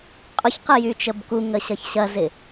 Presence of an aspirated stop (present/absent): absent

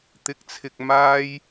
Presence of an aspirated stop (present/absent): present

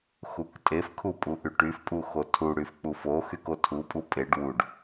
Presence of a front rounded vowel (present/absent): present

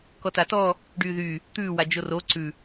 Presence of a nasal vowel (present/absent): absent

